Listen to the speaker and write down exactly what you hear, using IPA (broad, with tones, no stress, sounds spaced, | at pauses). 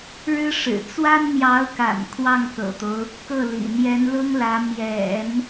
ɻ ɻ̩˥ ʂ ɻ̩˨˩ t͡s w a˥ n n̪ j ɑ˧˥ ʊ̯ k a̰˨˩ n kʰ w ɑ˥˩ ŋ k ɤ̰˨˩ t̪ o˦ ʊ̯ | k ɤ˥˩ l ḭ˨˩ n̪ j ɛ˧˥ n l ʊ˥ ŋ l ä˧˥ m j ɛ̰˨˩˦ n